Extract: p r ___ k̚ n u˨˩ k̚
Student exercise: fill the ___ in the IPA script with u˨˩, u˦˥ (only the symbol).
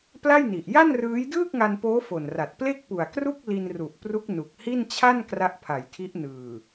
u˦˥